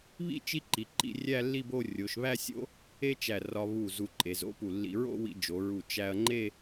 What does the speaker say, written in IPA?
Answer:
β ḭ˥ t͡ʃ i˥ ǃ i˩˧ ǃ ḭ˥˧ rʲ æ˥˧ lː i˥˧ b o˥˧ rʲ o˩˧ ʃ β æ˥˧ sʲ o̰˥ | e˥ t͡ʃ æ˧˩ r ɒ˧ β u˧˩ z u˧ ǃʼ e˩˧ z o̰˥ p u˧˩ lː ḭ˧ ɹ o̰˥˧ w ḭ˧ d͡ʒ o˩˧ ɹ u˧˩ t͡ʃ æ˧ ɐ̯ ŋ͡ǃ e˥˧

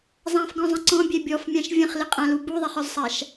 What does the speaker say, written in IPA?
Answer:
zˤ ã f ɡ ɔ̃ zˤ ə̃ ǀ ɔ̃ bʲ ɛ bʲ ɔ f mʲ ã ʃ vʲ ə̃ χ l ɪ qʼ ã l u b u ðˤ e χ ɔ z sˤ a ʃ

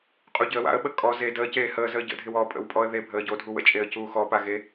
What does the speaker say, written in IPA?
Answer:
qʼ u ɟ ɪ ə̯ w a̰ ə̯ ɓ ə kʼ ɔ z e d əː c eː h əː z əː ɟ ə̰ dʱ ɪ w ɔ pʼ ə̰ w pʼ ɔ ə̯ ð e bʱ əː ɟ o dʱ u w ə̰ t͡ʃʼ e ə̯ c uː x ɔ p a ɣ e

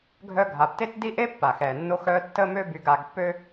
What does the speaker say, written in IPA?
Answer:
ɡʱ œ˦ ɡʱ a˩ b t e˥ t d i˥ ʔ e˥ pː a˩ x ɛ˩ nː o˦ x œ˦ tː ə˦ m ø˦ b y˨ ɡ a˨ ɡ pː ø˥

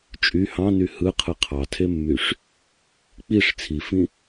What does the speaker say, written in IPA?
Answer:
t͡ʃʼ y h ɑ̃ n y h ɯ qʰ ɯ qʰ ɑ tʰ e mː y ʂ | k͡p i ʂ t͡sʰ i f ĩ

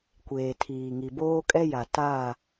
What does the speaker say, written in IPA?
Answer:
kʷ eː˨ tʰ iː˨ ŋ i˨ b oː˦ kʼ ɛ˦ j a˨ t aː˦˨

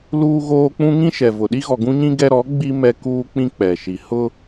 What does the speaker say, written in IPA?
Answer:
l uː˦ ɣ oː˦ k͡p ũ˦ ŋ ĩ˦ ʃ ɛ˨ v ʊ˨ ɗ i˦ ɣ ɔ˨ ɡ ũ˦ ɲ ĩ˦ ɡ ɛ˦ ɾ ɔ˨˦ ɡ͡b i˦ m ɛ˦ k uː˦ k͡p ĩ˦ k͡p ɛ˨ ʃ i˨ h ʊ˦

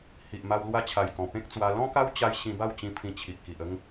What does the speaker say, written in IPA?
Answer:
h i˨ ʔ m a˧ w l w a˧ t͡ɕʰ a˨˩ j k ɔ̃˨˩ p ẽ˦ k̚ t͡s w a˧ l ɔ̃˦ k a˦ w t͡ɕ a˧ j ɕ ĩ˧ b a˥˧ w t͡ɕ ĩ˧ pʰ ĩ˧ t͡ɕʰ i˨ ʔ k i˨ ʔ ə˦ ŋ

